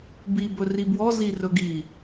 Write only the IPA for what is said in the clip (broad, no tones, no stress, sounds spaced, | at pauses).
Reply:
b i b ɵ r i b w ɔ z i r ɵ ɡ i